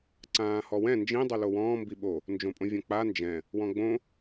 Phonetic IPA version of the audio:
ǀ ãː h ɔ w ɛ̃ n d͡ʒ ĩ dˤ o l o w ɔ̃ː m b i ɓ o | n d͡ʒ õ pʼ õ vʲ ɔ̃ k͡p a n d͡ʒ ɛ̃ | w ɔ̃ ɡ͡b õ

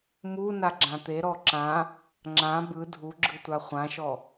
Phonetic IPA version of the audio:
m u n a ɡ͡ǁ ã t̪ e ɾ ɔ ǁ ã | ŋ͡ǁ ã b ɯ dʱ u ɡ͡ǁ ɯ tʷ a χʷ ã ʃ ɔ

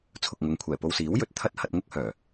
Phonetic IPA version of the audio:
t͡sʰ ʊ˨ k̚ ŋ ʊ˨ ŋ kʷʰ ɛː˨˩ p o˧ w s iː˨˥ w j ɵ˨ t̚ t̪ʰ ɐ˥ t̚ h ɐ˧ t̚ ŋ ʊ˥ k̚ h œː˨˩

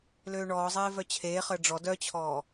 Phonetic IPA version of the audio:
l øː ɳ ɔː zˤ eː v œ t͡ɕʰ eː χ əː ɖ͡ʐ ɔ d œ t͡ɕʰ ɔː

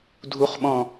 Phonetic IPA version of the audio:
dʱ u χ ɓ ɔ̃

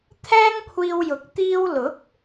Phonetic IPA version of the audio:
t̪ʰ ɛː˥ ŋ kʷʰ iː˧ w j ʊ˨˥ k̚ t̪ iː˧ w l ʊ˨˥ k̚

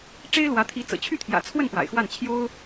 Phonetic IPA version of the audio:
ʈ͡ʂ e˥ ɪ̯ l w ä˧˥ t̪ʰ i˧˥ t͡s ɤ̰˨˩ t͡ɕʰ y˥˩ t̪ʰ j ä̰˨˩ t͡sʰ w ə˥˩ n p w a̰˨˩ ɪ̯ x w a˥˩ n t͡ɕʰ j o˥ ʊ̯

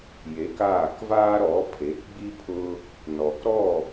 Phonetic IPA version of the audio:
j e˩˥ k aː˥˩ k v aː˥ ɾ ɔ˩˥ pʰ e˩˥ k ɡ͡b i˥ pʰ ʊ˥ | n ɔ˩ k ɾ ɔ˥˩

